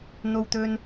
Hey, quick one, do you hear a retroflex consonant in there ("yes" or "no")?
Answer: no